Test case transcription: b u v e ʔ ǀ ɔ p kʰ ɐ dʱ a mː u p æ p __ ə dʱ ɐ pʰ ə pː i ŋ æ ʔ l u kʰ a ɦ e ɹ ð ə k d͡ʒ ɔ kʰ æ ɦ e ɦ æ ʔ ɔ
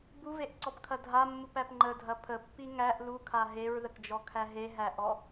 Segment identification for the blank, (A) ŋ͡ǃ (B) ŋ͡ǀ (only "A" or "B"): A